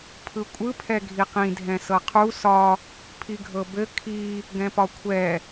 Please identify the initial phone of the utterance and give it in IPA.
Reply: pʰ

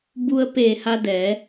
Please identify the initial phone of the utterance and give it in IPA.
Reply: b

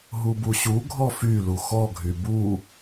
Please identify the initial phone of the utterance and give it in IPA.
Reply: ɦ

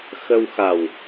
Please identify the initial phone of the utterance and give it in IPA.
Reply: x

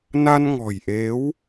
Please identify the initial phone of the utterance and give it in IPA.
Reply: n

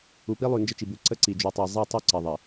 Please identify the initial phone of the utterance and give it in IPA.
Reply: u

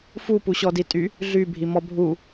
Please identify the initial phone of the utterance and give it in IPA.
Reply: f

